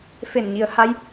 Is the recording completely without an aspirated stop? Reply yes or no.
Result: yes